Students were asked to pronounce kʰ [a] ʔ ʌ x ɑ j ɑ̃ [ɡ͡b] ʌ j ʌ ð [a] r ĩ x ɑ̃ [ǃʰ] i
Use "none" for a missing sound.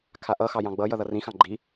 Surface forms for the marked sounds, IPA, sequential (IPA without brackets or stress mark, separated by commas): a, ɡ͡b, ʌ, ɡ͡ǃ